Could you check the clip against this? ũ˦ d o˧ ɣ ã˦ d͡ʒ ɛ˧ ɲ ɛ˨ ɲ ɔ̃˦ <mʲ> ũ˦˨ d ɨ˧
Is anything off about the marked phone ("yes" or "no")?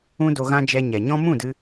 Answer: yes